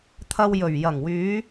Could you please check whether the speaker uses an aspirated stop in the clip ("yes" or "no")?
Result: yes